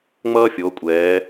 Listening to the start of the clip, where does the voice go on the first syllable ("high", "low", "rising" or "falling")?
high